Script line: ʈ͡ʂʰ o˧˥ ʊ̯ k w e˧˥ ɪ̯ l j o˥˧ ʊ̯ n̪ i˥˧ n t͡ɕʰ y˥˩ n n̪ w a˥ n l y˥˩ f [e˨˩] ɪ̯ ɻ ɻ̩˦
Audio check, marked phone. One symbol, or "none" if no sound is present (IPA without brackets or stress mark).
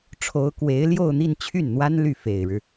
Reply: e˨˩